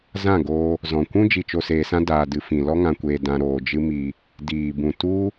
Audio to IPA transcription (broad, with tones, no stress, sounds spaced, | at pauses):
z ã˦˨ ɡ oː˧ | z ɔ̃˨ kʷ ũ˦ d͡ʒ i˧ t͡ʃ o˧ s eː˧ s ã˦ d aː˧ d ɨ˧ f ĩ˨ l ɔ˦ ŋ ã˧ kʷ eː˧ d ã˧ ɾ oː˧ d͡ʒ ɨ˦ m i˧ | d iː˨ b ũ˨ t u˦